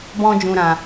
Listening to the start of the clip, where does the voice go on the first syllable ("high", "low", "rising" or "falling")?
high